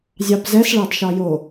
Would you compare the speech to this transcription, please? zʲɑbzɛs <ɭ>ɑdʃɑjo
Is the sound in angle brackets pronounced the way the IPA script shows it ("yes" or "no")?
yes